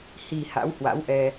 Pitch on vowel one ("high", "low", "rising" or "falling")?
low